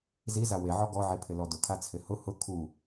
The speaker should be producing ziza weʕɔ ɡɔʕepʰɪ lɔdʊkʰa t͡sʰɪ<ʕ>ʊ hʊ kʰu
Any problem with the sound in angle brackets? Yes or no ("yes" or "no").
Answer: yes